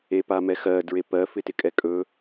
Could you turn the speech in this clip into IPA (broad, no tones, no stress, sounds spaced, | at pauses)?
e p a m ɛ x ɜ d ɹ e p ɜ f ɪ t ɪ kʼ ɛ kʼ ɵ